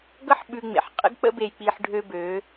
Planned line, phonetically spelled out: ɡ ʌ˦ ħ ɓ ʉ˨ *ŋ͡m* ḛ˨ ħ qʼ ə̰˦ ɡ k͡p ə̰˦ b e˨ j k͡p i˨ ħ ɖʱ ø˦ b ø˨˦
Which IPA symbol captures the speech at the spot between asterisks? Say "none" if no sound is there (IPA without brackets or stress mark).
ŋ͡m